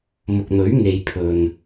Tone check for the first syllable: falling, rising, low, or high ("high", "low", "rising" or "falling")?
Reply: low